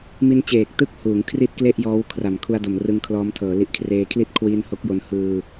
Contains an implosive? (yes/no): no